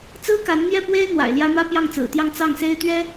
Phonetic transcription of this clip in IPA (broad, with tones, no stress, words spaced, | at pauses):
t͡sɹ̩˥ka˧˥nn̪jɛ˥˩pwe˥ɪ̯ n̪wa̰˨˩ɪ̯ljä˥ mä˥pjɑ˥˩ŋt͡sɹ̩˨˩t̪jɑ˥˧ŋ t͡sɑ˥˩ŋse˥ɪ̯t̪ɥɛ˥